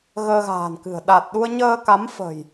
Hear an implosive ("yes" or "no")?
yes